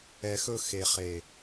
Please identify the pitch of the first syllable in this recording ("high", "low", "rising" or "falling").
low